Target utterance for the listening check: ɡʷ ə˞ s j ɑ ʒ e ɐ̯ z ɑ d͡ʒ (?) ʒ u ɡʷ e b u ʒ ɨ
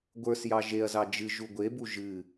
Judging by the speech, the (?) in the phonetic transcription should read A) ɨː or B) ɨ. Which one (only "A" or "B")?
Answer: B